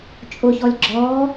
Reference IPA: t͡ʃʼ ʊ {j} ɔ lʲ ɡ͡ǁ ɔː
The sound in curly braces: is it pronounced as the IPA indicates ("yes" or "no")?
no